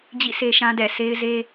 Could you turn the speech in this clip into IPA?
d͡ʑ ḭ˦˨ s e˦ ʃ ã˦ d ɛ˨ s e˦ ɪ̯ z e˦

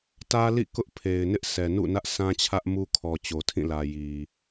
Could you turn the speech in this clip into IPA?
t ä˦ l ḭ˦˨ k ʊ˦ ʔ pʰ e˨ ɪ̯ n ɪ˦ ʔ s ɛ˨ n ṵ˦˨ n ä˦ ʔ sʰ ã˦ t͡ɕʰ ä˦ ʔ m u˦ kʰ ɔ˨ t͡ɕ o˨ tʰ ĩ˦˨ l ä˨ j i˨

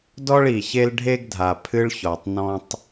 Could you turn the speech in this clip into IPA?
d ɔ˦ ɭ i˨ ç e˦ l ɖʱ e˦ ɡ dʱ a˨ pʰ ɨ˦ ɭ ç ɔ˨ tˤ n ɔ̃˦ tˤ

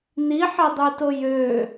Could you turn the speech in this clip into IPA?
n i ħ e dˤ y t o j ø

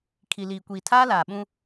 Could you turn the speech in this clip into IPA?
kʰ i˨ l iː˨ kʷ iː˨ tʰ aː˦ l aː˨ ɓ ũ˦

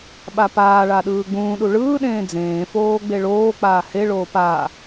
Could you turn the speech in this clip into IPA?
ɓ a p aː ɭ a ɗ ɯː ɡ͡b ũː ɗ u ɭ ɯː ɗ ẽː d͡z ẽː f oː ɡ͡b e ɭ oː k͡p aː h e ɭ oː p a

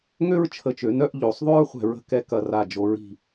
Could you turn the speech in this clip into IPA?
ŋ ø˥ ɹ t͡ʃʰ ə˧˩ t͡ʃ ø˩˧ n œ˥˧ ʔ ʎ o˩˧ sˤ ðˤ ø˥ ɹ χʷ ɛ̤˧ ɹ ə̤˥˧ k ɛ˧ k ɐ˧˩ r a˧˩ d͡ʒ o˩˧ ɹ i̤˧˩

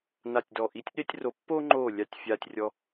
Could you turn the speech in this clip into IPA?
n a˦˨ tʲ d ɔ˦˨ ʔ i˧˥ tʲ ɗ e˥ tʲ r o˧˥ pː o˥ ŋ͡ǃ o˦˨ lʲ a˥ tʲ fʲ a˥ tʲ rʲ ɔ˥

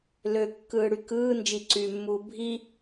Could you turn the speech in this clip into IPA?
l ø kː ɯː ɽ y k ɯː n d͡ʒ i ǀ yː mː uː bʱ i

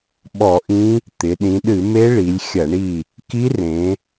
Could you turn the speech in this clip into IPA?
ɓ ɔ˧˩˧ ʔ ĩ˧˥ | t̪ ɪ˩˧ ɗ ĩ˩˧ ɗ ɨ˧˩˧ m e˧˥ ɭ i˩˧ lʲ xʲ ɐ˧˩˧ ɳ i˦˨ | k i˧˥ r ẽ˩˧

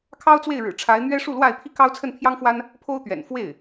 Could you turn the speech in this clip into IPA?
kʰ ɑ˥ ʊ̯ t͡s w e˥˩ ɪ̯ ɻ ɻ̩˨˩ ʈ͡ʂʰ a˧˥ ɪ̯ n̪ ɥ ɛ˥ ʂ u˥˧ l w a˥˩ ɪ̯ pʰ i˥ k ɑ˥ ʊ̯ t͡sʰ ə˥˩ n pʰ j ɑ˥ ŋ f w a˥ n | pʰ o˥ ʊ̯ t̪ ɥ ɛ̰˨˩ n f w e˥˩ ɪ̯

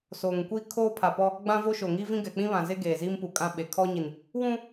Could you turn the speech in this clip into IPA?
s oː˨ ŋ kʷ i˦ kʰ oː˦ pʰ a˨ p ɔ˦ | ɡ͡b ã˦ v o˦ ʃ o˨ ŋ iː˦ v ĩ˦ ɡ ɛ˨ k͡p ĩ˦ β ã˨ z e˦ ɡ eː˨ z iː˦ m p u˨ kʼ ã˦ ɓ e˨ kʰ ɔ˦ ɲ i˨ n | w ũ˦

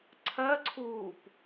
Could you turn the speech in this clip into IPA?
ǀʰ ɜ ǀʰ uː p

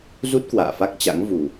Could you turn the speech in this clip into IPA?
z u˦˥ t̚ k w a̰ː˧˨ f a˦˥ k̚ t͡ɕ a̰˧˥ ŋ v u˨˩

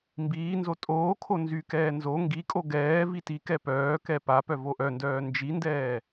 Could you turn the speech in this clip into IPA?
m b iː n z o tʼ oː kʰ o n z y k ɛː n z o ŋ ɡ i kʼ o ɡ ɛː v i t i k ɛ p œː k ɛ p a p œ v o ʔ œ n d œː n d͡ʒ i n d ɛː

